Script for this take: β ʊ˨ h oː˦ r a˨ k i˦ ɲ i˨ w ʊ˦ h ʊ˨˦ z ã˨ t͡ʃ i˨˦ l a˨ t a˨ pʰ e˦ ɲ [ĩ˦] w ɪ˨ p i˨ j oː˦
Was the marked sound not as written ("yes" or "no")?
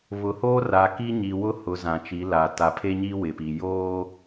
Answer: yes